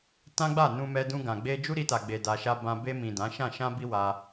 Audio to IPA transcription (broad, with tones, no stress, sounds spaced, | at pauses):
t ã˦ ɡ͡b a˦˨ n ũ˧ m ɛ˧ d ũ˧ ɡ ã˨ ɡ͡b e˧ d͡ʒ u˦ ɾ i˧ t a˨ ɡ͡b e˨ d a˧ ʃ a˦ b ã˧ b e˧ m ĩ˨ d ã˨˦ ʃ ã˦˨ ʃ ã˧ b i˧ w a˦